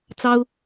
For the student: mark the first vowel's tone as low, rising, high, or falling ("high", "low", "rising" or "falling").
high